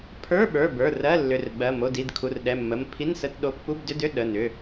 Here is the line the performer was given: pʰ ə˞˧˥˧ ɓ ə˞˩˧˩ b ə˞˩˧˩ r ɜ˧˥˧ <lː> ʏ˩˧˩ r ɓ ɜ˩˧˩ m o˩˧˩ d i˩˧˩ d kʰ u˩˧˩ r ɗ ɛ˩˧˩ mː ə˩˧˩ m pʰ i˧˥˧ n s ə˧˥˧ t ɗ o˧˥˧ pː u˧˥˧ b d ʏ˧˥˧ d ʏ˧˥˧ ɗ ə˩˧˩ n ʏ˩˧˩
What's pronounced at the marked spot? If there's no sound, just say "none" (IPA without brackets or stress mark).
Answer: lː